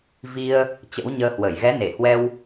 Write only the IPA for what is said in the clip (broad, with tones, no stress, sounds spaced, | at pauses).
v i˧ ə̯ | t͡ɕ ə̰˧˥ w ɲ əː˧ h w ə˧˩ j ɣ ɛ˨˦ n e˧˩ h w ɛ˧ w